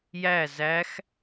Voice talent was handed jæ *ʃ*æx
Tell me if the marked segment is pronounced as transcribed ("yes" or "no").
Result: no